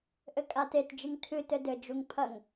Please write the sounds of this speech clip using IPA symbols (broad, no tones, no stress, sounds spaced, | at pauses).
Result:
ʔ ɘ kʼ a t e t d͡ʒ ɨ ŋ tʰ ɨ t ɘ d ɘ d͡ʒ u ŋ pʰ ɐ ŋ